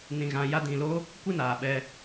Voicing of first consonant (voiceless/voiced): voiced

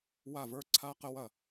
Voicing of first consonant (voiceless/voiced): voiced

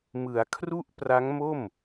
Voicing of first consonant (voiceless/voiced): voiced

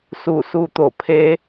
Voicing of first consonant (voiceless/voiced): voiceless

